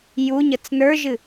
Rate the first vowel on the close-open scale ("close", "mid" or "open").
close